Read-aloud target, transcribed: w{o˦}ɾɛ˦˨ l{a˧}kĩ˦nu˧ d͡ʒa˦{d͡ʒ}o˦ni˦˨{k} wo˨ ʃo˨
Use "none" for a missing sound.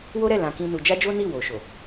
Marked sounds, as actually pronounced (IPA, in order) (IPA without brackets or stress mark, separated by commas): o˦, ã˧, d͡ʒ, none